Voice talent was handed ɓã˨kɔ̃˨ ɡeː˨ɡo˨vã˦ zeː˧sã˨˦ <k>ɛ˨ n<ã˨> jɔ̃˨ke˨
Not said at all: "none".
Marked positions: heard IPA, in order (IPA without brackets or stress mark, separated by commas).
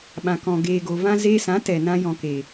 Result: t, ã˧